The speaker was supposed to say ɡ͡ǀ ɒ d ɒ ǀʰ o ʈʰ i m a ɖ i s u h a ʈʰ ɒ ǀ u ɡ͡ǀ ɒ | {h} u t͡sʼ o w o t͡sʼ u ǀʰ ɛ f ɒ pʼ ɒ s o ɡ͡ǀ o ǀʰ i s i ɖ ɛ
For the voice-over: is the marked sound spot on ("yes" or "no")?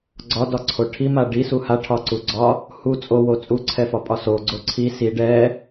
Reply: yes